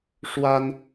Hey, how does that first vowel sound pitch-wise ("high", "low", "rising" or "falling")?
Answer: high